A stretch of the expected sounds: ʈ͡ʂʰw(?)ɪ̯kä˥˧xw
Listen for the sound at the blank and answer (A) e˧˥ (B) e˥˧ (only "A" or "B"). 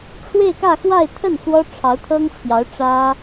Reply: B